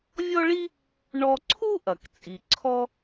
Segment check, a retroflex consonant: present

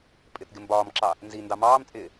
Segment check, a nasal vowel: absent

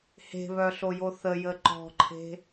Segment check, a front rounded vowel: present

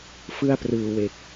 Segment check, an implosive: absent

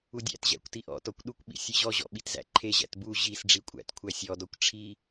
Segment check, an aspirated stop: present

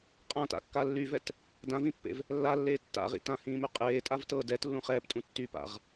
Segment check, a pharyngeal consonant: absent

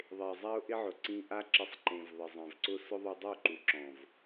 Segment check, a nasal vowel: present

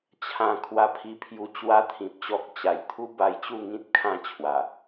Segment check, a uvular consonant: absent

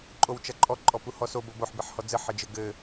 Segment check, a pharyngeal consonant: present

